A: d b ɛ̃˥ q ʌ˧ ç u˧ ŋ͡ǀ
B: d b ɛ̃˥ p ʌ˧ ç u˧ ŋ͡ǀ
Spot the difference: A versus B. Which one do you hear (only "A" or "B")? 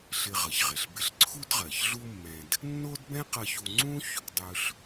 A